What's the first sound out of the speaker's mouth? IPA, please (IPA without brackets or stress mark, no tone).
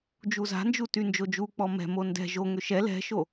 d͡ʒ